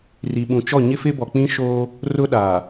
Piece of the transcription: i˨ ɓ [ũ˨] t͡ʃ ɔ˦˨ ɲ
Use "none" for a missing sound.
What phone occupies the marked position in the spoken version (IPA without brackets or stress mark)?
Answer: ũ˨